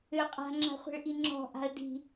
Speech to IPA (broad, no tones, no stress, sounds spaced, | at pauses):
ʏ qʼ a̤ ŋ͡ǁ a̤ χʷ e̤ ɭ ʔ i ŋ͡ǁ ɔ̤ ʔ a̤ ə̯ d i̤